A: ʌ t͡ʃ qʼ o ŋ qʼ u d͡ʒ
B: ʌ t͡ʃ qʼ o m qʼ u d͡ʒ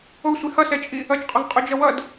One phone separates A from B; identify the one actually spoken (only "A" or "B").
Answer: A